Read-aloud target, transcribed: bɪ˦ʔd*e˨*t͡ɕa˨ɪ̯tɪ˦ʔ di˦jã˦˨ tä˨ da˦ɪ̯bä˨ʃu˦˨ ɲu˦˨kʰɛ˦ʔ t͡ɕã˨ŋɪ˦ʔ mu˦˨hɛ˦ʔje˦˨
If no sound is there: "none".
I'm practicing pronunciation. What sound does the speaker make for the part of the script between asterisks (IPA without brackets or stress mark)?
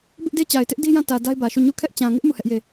e˦